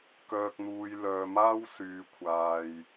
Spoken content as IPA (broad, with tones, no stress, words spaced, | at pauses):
kœː˨k̚n̪uː˨j lœː˨maː˥w syː˨kʷʰaː˨j